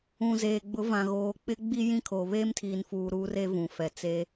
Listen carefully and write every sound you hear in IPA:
ũ˨zeː˨ ɡ͡bʊ˨˦vã˨ɣoː˨k͡pɪ˦ ɡ͡bi˦ jĩ˦kʰo˨ βeː˦mtʰiː˨nfuː˨ ɾuː˦re˦ vũ˨fɛ˨ t͡se˦

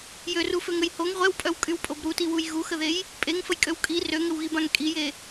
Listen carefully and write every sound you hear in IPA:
jøruføŋəj hoŋ ʁʷɛwpʼœwkʼywpʼob ɾutiwuj ɣuxəðej | pʼeŋfəjkʼøw kʼi røŋəwɣibãŋ kʼije

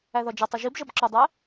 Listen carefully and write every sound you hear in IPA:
æðɒd͡ʒʌtˤʌ ʒibʒʌb ǁʊdˤɜ

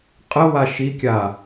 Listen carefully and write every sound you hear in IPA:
qʼə waʃikʲa

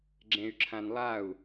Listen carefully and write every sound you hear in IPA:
ɡ͡ǁẽy̯ǁʰãnlˠau̯

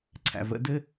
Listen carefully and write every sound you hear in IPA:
ǀʰæ̰˨və̰˨˦ dɘ˦

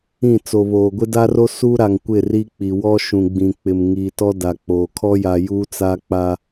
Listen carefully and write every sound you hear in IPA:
ĩ˦˨t͡so˨βoː˨ ɡʷɪ˦da˦ro˦ suː˦ɾa˨ŋ kʷɪ˦˨ri˦k͡pi˨ wɔ˦ ʃũ˨ɡ͡bĩ˨ k͡pɪ˨m ŋiː˨tɔ˦ da˨k͡poː˨ kʰɔ˦ja˨ juː˦t͡sa˦k͡pa˦

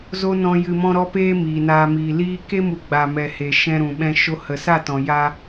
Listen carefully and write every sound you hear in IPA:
zo˦nɔ̃˧ jɨ˧mɔ̃˦ɾɔ˦peː˦ miː˨naː˧miː˨ liː˦ ke˦mu˨ ɡ͡ba˨mɛ˨ he˨ʃɛ̃˧ɾũ˨ɓɛ̃˧ ʃo˧hə˨sa˦˨tɔ̃˨ ja˧

